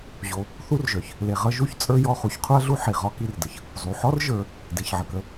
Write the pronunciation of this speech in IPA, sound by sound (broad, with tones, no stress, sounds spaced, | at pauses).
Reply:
ʑ o˨ | θ u˥ r ʒ œ˩ ç | l e˨ ʁ ʌ˦ ʒ u˦ ç t͡sʼ ə˞˥ j ɔ˦ χ u˨ ç qʰ u˦ ɐ̯ ɮ u˦ ħ i˩ ʁ ɒ˦ k i˦ r d ə˩ ç | zˤ u˩ ħ ɔ˥ r ʒ ə˞˨ | d e˩ ç ʕ ə˩ k ə˨